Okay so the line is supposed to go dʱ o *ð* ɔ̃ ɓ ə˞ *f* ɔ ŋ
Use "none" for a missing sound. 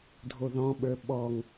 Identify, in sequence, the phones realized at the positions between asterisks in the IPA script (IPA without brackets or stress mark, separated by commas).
ð, ɓ